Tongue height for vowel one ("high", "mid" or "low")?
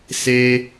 mid